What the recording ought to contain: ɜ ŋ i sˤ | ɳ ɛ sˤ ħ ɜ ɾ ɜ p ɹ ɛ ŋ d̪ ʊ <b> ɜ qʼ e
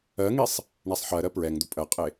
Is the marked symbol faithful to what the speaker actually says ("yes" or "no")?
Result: no